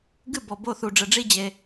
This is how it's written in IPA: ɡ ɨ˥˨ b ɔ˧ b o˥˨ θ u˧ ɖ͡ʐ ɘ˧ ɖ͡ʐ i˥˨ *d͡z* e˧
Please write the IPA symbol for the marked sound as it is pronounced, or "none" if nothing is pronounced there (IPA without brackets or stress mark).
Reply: d͡ʑ